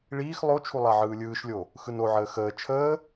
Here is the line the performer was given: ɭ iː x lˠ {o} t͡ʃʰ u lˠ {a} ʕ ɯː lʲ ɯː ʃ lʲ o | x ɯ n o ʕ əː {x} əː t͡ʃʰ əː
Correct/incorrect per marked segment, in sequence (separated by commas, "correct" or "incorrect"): correct, correct, correct